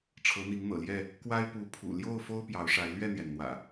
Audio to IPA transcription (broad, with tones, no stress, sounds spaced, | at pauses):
ʈ͡ʂʰ ɤ˨˦ n̪ i˨˦ ŋ n̪ ɤ̰˨˩ l j ɛ˥˨ | k w a˦ ɪ̯ p u˨˦ pʰ ṵ˨˩ l j o˥˨ ʊ̯ f o˦ ʊ̯ p j ɑ˨˦ ʊ̯ ʂ a˨˦ ɪ̯ l ɥ ɛ˥˨ n̪ j ɛ˩ n n̪ w ä̰˨˩